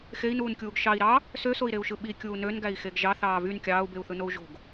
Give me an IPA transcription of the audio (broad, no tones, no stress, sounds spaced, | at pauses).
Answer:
x e i̯ n uː n kʲ uː ɡ ʃ ɑ i̯ ɾ ɑ | s ø s o i̯ ɾ e u̯ ʃ ɯ ɓ i kʲ uː n ø n ɡ æ i̯ x e ɡ ʒ ɑ θ ɑː v y n kʲ ɑː u̯ b e u̯ θ ɯ n o u̯ ʒ o̤ ɡ